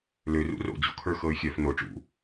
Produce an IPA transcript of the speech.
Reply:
l ø r ṵ r o̰ d͡ʑ o̰ kʰ ə˞ x ɤ y̯ xʲ œ f n o ʈ͡ʂ ṵ

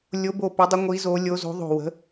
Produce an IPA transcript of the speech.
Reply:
lʲ o˨˦ b o˧˩ p ɵ˨˦ dˤ ə˨˦ ŋʷ i˨˦ z o˨˦ lʲ o˨˦ z o̤˨˦ ðˤ o̤˧˩ w ə̤˨˦

